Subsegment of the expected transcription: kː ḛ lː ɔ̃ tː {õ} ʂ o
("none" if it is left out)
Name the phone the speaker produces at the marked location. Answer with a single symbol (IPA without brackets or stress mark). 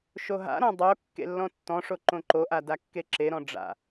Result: ɔ̃